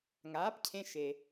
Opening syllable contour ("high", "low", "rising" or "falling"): rising